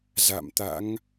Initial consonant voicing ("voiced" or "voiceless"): voiced